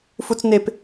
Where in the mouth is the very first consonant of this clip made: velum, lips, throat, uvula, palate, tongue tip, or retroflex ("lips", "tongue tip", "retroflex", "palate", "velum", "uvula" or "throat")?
lips